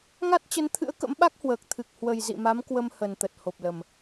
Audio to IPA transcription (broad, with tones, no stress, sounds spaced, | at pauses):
ŋ a˦˥ t̚ t͡ɕ ə˨˦ n t̪ʰ ɨ̰˧˥ ə̯ k ə̰˧˥ m ɓ a˦˥ k̚ h w əː˨˩ k̚ t̪ʰ ɨ˨˩ k̚ h w ə˨˩ j z ḭ˧˨ m a˨˦ m k w ə˧ m h ə˨˩ n t̪ ə˨˩ t̚ h o˨˩ p̚ l ə˨˩ m